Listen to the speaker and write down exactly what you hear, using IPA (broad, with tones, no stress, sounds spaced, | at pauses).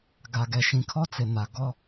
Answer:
ɡ a˨ ɡ ɛ˨ ʃ ĩ˨ kʰ ɔ˦ t͡s ɪ˨ n a˨ ɡ ɔ˦